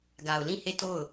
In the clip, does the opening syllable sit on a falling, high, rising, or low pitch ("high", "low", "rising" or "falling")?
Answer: low